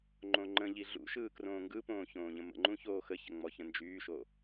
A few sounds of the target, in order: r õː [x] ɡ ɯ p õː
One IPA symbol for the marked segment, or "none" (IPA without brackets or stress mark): ŋ